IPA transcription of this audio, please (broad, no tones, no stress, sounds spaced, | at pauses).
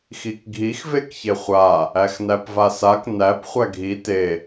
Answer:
x i k ɡʱ i x v e k ç e χʷ a | æ x n æ p v a s a k n æ p χʷ æ ɡʱ i t e